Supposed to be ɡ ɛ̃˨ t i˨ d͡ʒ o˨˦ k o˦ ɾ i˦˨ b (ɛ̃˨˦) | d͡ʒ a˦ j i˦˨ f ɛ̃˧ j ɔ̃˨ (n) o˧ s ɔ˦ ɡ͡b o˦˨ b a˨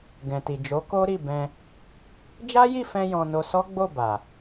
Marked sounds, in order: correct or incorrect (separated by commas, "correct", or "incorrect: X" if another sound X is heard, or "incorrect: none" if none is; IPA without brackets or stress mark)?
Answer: incorrect: ɛ̃˧, correct